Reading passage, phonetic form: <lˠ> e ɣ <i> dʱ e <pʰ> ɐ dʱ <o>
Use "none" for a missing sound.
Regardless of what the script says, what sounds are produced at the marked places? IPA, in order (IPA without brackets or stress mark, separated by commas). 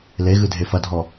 l, ɨ, f, ɔ